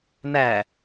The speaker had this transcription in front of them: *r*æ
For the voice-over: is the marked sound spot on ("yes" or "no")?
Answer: no